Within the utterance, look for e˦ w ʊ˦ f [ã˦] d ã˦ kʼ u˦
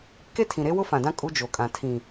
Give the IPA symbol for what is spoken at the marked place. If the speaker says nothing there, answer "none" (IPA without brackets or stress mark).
ã˨